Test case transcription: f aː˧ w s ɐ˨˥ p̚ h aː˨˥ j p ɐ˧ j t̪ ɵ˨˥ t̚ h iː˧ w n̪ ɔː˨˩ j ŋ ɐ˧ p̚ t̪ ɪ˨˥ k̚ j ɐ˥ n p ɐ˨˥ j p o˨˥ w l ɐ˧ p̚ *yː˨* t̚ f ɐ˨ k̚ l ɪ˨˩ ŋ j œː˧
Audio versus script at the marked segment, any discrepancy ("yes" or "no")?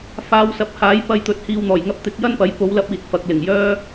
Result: yes